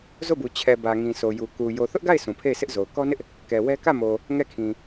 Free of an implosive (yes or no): yes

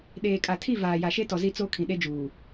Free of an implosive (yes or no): no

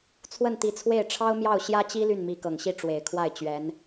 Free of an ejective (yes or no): yes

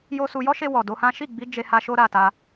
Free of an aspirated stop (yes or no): yes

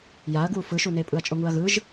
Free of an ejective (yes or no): no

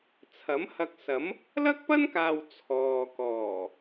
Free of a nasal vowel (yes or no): yes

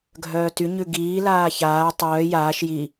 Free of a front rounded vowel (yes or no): no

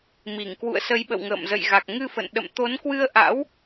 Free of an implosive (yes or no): no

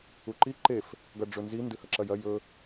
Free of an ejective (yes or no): yes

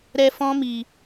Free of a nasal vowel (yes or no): no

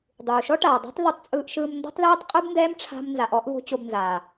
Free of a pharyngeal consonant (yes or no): yes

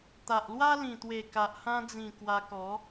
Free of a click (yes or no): yes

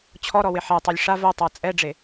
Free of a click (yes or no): yes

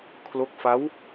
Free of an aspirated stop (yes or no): no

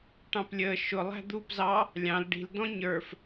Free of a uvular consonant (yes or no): yes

